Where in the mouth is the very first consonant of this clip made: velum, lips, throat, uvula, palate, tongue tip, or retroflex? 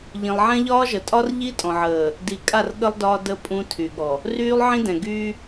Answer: palate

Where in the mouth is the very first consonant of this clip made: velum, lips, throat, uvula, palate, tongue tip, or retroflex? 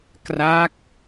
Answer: velum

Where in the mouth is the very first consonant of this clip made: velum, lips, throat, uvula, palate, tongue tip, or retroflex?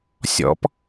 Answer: tongue tip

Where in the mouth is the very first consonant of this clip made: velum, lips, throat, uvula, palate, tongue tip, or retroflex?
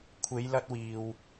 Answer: velum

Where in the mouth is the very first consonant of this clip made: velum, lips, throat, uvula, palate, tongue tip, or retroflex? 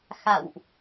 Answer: velum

